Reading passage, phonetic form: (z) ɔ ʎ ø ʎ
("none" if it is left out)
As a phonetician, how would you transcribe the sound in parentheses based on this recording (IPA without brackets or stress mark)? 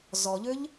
z